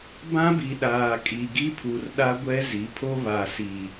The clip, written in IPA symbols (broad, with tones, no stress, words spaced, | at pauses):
bã˦bi˨ ɗaː˨kʼi˨ɡi˦pʰu˨r ɗa˦ɡʷɛ˦zi˨˦pʰo˦ βa˨si˨